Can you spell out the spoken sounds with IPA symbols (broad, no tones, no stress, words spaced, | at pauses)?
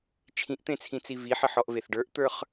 t͡ʃʰĩʔt̪ẽt͡sʰĩt͡si viħəħɔʔveθ ɖə˞ʔt̪ə˞χ